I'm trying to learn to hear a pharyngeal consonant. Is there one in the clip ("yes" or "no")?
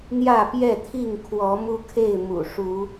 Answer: no